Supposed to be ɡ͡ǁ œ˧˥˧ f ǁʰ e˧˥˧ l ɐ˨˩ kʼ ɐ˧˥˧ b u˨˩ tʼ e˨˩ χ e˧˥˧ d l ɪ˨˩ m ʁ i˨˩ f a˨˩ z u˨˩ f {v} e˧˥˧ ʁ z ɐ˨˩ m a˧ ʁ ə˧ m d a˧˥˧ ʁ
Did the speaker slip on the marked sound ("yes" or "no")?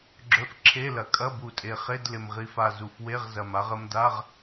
yes